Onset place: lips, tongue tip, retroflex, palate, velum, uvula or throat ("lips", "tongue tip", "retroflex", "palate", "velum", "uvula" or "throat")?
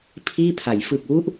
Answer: lips